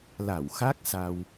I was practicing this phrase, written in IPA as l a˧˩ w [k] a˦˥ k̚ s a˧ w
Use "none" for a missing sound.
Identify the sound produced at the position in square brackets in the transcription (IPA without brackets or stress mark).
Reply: x